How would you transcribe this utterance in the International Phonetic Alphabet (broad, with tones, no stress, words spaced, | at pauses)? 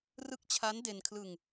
rɯ˦˥k̚t͡ɕʰa˦˥n de˧nkʰlɯ˧ŋ